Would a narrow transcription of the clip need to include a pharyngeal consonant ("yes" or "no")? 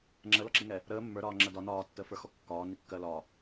no